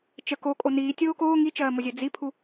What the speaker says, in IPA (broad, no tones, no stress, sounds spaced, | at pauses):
t͡ʃ ə k o kʼ o n iː tʲ oː k oː ŋ i t͡ʃ ɜː m o zʲ ɜ d͡z i pʰ u